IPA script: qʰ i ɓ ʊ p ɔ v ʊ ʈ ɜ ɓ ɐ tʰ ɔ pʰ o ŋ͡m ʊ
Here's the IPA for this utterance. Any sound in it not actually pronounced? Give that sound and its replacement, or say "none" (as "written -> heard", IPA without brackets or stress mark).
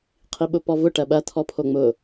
none